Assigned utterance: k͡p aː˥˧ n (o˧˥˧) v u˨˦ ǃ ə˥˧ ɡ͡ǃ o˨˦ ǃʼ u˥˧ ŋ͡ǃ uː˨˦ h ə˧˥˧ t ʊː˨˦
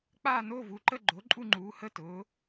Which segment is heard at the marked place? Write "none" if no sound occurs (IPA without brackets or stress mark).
o˧˥˧